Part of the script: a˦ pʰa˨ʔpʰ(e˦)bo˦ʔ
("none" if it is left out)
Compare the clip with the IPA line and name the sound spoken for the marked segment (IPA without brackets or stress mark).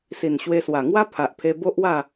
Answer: e˧